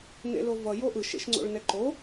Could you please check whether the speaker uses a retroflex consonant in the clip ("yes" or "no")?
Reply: yes